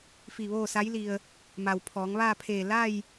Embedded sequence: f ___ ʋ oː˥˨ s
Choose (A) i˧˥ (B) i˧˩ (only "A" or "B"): B